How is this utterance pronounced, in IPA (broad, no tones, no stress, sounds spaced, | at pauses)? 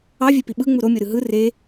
ɑ vʲ e p i ɓ ɯ ŋ͡m u ɾ o mʲ o ɾ ɯ ɦ ɯ r e